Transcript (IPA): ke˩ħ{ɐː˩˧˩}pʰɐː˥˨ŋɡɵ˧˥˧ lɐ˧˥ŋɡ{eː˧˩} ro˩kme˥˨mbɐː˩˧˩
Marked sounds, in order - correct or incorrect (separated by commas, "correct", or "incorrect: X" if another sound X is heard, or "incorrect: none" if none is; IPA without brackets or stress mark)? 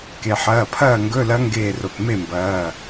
correct, correct